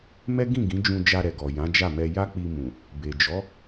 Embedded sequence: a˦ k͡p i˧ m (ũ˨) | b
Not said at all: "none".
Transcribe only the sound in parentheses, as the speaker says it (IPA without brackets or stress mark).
ũ˨